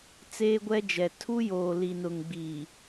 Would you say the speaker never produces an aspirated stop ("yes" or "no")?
no